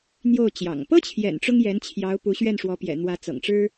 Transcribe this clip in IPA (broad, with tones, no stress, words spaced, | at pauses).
n̪jo˥˩ʊ̯ t͡ɕjɑ̰˨˩ŋ pɤ˥t͡ɕʰjɛ̰˨˩n ʈ͡ʂʊ˥ŋjɛ˧˥nt͡ɕʰjɑ˧˥ʊ̯ pu˧˥ɕɥɛ˥˩nʂwɔ˧˥pjɛ̰˨˩ n̪wä˧˥t͡sɤ̰˨˩ŋʈ͡ʂɻ̩˥